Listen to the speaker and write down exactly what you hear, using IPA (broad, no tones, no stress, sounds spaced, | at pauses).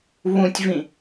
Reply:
β ũ tʲ v ĩ